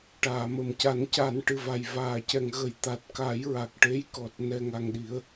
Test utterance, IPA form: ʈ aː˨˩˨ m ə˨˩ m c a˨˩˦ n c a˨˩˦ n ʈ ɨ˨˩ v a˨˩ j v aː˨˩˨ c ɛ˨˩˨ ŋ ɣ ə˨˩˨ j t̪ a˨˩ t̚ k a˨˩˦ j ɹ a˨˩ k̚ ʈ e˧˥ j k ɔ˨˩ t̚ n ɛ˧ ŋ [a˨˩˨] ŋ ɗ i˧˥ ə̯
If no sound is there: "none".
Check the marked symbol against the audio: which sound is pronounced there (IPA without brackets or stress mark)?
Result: a˧